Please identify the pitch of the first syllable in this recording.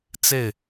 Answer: falling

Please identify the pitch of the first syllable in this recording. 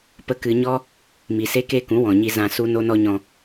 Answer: high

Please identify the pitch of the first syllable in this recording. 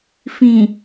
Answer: low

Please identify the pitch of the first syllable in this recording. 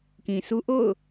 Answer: low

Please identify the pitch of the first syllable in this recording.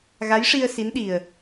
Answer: rising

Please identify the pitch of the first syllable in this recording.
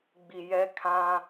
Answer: low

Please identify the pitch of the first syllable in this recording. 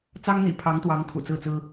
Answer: high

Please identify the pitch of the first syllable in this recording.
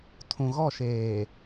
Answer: low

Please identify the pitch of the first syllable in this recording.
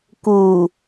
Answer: low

